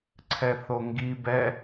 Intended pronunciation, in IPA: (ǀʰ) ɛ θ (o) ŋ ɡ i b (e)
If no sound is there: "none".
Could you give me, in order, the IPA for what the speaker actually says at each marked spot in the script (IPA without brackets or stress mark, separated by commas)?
ǀʰ, o, ɛ